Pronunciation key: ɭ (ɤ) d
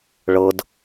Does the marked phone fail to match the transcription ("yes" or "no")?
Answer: no